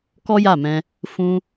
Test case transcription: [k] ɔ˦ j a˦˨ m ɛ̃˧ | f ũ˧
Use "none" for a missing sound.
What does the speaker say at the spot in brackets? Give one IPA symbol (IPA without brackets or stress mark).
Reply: k